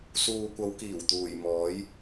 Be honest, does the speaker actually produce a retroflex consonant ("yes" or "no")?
no